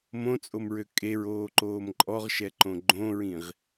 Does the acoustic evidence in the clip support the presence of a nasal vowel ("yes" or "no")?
yes